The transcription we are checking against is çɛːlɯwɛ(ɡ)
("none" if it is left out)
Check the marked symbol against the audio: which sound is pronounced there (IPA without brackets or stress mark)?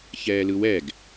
ɡ